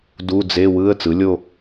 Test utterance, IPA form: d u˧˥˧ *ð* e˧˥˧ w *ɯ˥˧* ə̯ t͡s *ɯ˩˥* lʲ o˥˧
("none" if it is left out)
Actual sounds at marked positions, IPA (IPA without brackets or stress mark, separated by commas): d͡z, ɯ˧˥˧, ɯ˩˥